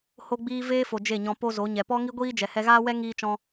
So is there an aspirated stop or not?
no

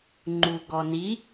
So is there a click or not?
yes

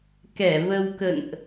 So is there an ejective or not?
no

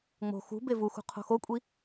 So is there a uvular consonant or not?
yes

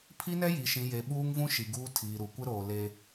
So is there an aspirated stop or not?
yes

